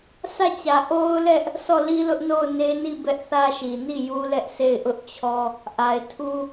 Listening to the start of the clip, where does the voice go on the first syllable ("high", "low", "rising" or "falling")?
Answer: falling